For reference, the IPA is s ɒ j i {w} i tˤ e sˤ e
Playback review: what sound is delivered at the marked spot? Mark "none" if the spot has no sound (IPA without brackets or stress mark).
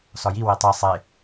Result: w